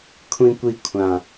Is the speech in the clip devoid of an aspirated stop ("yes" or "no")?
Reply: no